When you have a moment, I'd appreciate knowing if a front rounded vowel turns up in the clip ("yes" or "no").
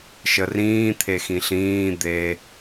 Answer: no